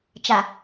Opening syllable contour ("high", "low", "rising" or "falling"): low